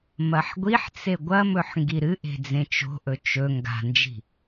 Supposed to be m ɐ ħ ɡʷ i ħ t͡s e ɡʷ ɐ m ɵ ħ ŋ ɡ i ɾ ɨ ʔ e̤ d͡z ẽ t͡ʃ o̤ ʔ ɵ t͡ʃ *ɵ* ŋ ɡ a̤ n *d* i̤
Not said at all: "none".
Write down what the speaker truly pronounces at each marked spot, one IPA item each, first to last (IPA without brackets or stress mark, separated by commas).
ɵ, d͡ʒ